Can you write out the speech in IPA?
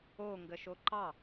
oŋɡəʃo ǃɑ

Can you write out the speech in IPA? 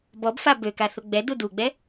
bɔbfa bøka θoɡ͡bɛdu duɡ͡bɛ

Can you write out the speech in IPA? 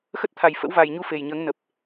xə˦˥t̚t̪ʰa˨˩j fə̰˧˥wva˨˩jɲu˧ fe˨˩jɲəː˨˦ŋnə˨˩p̚

